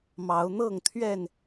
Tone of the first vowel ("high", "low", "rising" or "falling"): rising